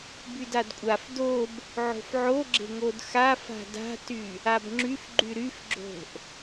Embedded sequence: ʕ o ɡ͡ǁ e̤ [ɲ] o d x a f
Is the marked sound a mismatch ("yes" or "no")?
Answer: yes